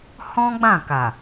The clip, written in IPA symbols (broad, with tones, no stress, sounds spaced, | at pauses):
h ɔ̃˦ ɡ͡b ã˦˨ k a˨